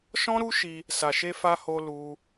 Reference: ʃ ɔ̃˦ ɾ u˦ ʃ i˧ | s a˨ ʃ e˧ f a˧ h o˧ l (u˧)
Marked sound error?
no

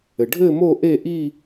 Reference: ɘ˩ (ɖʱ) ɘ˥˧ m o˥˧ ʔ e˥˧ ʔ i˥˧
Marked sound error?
no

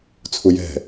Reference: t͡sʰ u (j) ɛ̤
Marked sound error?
no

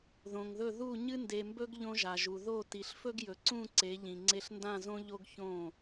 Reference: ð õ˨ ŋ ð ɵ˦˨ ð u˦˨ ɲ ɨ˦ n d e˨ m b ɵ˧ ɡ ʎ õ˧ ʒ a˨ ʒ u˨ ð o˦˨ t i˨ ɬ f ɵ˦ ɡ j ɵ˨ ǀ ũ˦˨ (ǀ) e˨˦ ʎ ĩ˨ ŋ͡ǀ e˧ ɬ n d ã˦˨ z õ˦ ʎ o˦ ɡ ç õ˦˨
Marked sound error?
no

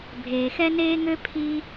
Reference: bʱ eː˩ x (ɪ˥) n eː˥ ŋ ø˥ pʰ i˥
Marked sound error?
yes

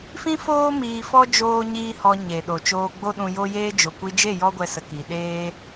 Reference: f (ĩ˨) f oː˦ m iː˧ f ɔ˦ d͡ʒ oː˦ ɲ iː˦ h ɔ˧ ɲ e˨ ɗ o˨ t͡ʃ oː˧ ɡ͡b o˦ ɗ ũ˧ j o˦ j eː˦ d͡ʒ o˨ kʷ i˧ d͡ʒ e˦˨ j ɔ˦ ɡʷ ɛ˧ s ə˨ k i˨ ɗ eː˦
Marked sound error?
yes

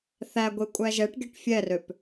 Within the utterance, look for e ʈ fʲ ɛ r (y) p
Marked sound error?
yes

